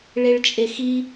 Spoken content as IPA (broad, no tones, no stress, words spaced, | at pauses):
ɭeɭt͡ʃʼexi